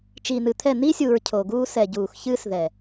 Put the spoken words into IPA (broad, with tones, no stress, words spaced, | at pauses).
t͡ʃiː˨n̪ɨ˨t̪ʰɛ˦˨ n̪i˦sʲuː˨ɹ cʰo˨ɡuː˦ sɛ˨ɟuː˨xçɨː˦sðɛ˨